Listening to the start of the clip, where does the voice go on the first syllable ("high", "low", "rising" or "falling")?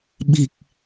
low